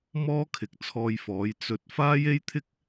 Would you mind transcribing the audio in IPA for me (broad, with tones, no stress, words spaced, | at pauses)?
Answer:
mɔː˥kʰɪ˨k̚t͡sʰɔː˧jfɔː˨˥j t͡sɵ˨˥t̚ faː˥je˥jt̪ʰɪ˥k̚